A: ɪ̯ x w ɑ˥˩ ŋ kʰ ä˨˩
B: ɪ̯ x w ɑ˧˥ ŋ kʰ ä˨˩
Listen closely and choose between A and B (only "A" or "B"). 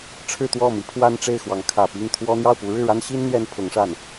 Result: B